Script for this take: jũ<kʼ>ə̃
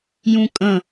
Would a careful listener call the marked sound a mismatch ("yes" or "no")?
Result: no